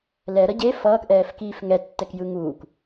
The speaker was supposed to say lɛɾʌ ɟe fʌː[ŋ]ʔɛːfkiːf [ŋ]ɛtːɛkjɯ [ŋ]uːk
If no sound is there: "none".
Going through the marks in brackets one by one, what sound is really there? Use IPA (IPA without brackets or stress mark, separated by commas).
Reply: k, ŋ, ŋ